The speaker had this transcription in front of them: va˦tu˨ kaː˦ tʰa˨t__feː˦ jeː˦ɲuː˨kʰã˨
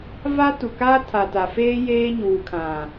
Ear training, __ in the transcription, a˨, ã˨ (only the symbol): a˨